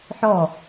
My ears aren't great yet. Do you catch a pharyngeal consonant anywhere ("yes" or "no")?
yes